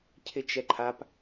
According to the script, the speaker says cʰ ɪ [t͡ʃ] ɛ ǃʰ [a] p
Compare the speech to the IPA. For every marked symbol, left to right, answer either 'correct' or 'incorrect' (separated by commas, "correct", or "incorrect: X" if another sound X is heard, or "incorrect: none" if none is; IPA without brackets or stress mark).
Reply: correct, correct